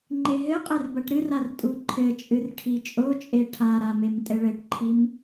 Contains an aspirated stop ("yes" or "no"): yes